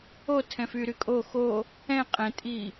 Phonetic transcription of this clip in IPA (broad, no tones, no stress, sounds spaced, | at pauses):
o tʰ ɛ̃ f y ɾ y kʼ o x o | ɛ̃ qʼ ɛ̃ tʼ i